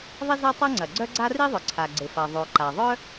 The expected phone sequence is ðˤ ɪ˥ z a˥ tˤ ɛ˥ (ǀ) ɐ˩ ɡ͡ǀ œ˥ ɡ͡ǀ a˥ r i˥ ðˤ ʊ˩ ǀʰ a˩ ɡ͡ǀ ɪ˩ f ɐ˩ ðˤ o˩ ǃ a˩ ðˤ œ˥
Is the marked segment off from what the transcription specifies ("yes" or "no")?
yes